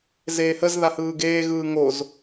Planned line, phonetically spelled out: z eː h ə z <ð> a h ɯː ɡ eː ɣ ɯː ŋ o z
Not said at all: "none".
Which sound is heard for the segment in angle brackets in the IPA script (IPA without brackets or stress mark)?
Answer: ð